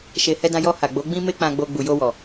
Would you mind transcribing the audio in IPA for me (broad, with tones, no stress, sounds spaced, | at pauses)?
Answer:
ʃ e˨ h ɛ˧ d ã˧ j ɔ˧ h a˨ ɡ͡b o˨˦ ɡ͡b ĩ˦ m e˦ k͡p ã˧ ɡ͡b o˧ ɡ͡b u˨ j o˧ w ɔ˨